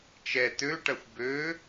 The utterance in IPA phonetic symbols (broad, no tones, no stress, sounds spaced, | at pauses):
t͡ʃ ɛ t̪ ø ʈ ɐ xʷ b ø